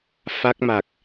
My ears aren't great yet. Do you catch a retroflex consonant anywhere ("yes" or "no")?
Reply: no